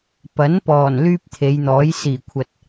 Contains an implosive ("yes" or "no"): no